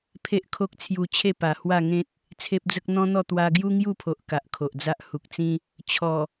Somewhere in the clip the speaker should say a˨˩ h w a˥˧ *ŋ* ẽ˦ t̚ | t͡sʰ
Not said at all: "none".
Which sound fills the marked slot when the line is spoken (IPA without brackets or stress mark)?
ŋ